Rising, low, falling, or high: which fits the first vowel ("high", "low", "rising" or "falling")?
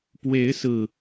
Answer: rising